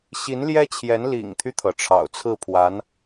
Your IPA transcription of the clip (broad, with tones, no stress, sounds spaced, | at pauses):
ɕ i˧˥ n l j ɛ˥ t͡ɕʰ j ɛ˧˥ n l ḭ˨˩ ŋ t̪ʰ y˦ t̪ʰ ɤ˩ ʈ͡ʂʰ ɑ̰˨˩ ʊ̯ t͡sʰ ɹ̩˥˩ pʰ w a˧˥ n